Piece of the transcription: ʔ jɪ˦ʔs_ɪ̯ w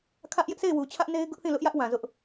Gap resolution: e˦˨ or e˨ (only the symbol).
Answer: e˦˨